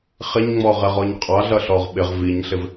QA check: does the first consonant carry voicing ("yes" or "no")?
no